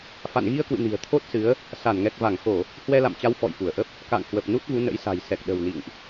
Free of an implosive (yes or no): no